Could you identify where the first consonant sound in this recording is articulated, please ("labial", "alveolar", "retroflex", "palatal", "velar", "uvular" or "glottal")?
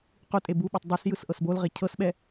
uvular